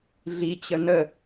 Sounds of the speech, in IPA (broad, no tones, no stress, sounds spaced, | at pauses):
ɮ i t͡ɕ ə n ə